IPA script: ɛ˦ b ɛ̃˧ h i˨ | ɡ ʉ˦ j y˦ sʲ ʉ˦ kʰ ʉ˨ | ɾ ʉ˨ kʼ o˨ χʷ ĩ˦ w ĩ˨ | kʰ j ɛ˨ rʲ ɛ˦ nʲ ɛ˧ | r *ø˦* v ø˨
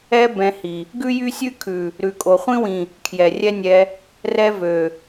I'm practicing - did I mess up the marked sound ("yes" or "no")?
yes